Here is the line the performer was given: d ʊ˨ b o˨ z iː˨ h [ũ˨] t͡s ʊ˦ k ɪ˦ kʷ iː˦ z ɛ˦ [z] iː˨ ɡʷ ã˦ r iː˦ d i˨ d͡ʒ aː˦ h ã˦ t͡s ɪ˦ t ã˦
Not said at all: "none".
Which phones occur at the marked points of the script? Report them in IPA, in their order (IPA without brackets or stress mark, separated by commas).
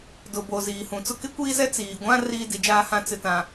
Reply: ũ˨, t͡s